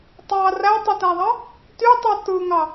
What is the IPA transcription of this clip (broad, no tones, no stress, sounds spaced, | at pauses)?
tˤ ɑ r æ tˤ i t æ ðˤ ɑ | t y tˤ u t ɯ ŋ ɑ